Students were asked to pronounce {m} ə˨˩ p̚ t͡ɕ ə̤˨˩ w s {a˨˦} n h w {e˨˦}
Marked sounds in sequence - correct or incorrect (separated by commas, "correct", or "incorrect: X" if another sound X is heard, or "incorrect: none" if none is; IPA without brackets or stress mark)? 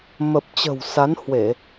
correct, correct, incorrect: e˧˩˨